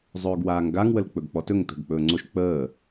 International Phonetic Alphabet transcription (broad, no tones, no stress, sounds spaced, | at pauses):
zˤ ɵː ɡ w aː ŋ ɡ a ŋ w ə l k͡p ɵ ɡ k͡p ɔ t ɵ ŋ t o̤ ɡ k͡p ɵː ŋ͡ǀ o ʃ k͡p əː